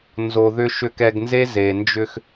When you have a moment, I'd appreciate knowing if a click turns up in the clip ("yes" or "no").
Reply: no